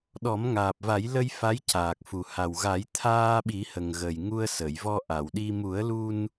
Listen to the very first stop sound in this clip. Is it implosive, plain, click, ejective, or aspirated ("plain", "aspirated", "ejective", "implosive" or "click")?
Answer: implosive